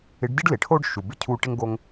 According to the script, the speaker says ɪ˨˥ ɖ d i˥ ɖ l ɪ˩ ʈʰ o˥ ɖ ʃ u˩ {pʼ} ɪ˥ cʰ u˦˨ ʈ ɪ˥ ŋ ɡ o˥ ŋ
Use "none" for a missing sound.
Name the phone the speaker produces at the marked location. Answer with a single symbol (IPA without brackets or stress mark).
b